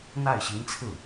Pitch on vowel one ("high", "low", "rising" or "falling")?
falling